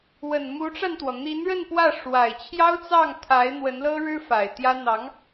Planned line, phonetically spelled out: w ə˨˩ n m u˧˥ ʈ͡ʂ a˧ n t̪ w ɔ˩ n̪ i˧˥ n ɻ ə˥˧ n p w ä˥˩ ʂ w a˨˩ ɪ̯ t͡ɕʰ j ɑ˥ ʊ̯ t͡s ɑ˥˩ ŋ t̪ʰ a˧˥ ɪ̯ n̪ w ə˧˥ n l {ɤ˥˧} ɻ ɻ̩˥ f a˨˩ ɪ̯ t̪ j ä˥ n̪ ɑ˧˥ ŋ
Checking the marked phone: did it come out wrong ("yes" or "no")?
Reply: yes